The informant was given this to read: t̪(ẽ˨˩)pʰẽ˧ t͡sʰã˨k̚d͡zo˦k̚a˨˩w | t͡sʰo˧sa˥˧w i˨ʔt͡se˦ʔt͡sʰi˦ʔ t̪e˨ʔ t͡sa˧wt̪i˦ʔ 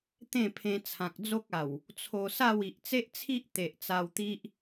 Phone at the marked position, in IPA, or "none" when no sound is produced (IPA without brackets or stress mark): ẽ˥˧